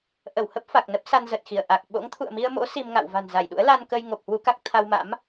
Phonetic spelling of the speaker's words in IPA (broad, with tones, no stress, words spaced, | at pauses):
ʔə˧˩whə˦˥p̚ fa˨˩k̚nə˦˥p̚ sa˧nzə˨˩t̚xi˧˩ə̯ ʔa˨˩k̚ ɓo̰˧˥ŋt̪ʰṵ˧˨ə̯mi˧ə̯mo̰˧˥ si˧mŋa̰˧˨w va̤˨˩nza˧˩jɗṵ˧˥ə̯ la˧nkə˧j ŋo˨˩p̚hwu˧ka˦˥k̚ t̪ʰa˧wma̰˧˥m